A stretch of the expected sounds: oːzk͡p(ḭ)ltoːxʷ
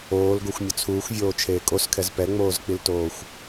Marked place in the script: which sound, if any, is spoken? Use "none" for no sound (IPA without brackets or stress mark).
i